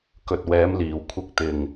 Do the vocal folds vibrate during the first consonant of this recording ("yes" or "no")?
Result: no